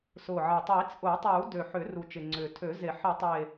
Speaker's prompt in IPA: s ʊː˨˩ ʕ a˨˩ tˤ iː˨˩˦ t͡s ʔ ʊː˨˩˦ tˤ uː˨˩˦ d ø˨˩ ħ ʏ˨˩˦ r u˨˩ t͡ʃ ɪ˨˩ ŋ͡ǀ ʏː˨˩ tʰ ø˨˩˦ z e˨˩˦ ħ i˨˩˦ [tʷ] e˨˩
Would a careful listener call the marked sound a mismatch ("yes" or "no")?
yes